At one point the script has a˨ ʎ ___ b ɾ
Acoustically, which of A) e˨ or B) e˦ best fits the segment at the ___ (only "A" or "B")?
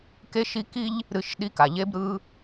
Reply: B